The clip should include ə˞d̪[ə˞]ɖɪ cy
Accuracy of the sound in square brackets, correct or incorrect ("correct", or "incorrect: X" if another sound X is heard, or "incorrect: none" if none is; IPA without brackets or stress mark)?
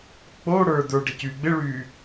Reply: correct